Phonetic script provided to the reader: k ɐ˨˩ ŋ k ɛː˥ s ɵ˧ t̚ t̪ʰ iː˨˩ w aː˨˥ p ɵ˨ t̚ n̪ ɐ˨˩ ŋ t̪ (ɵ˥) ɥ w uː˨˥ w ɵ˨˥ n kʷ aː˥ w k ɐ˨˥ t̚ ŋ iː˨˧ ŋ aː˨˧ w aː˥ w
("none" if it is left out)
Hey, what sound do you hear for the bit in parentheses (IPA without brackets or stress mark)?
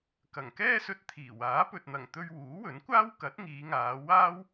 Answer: ɵ˧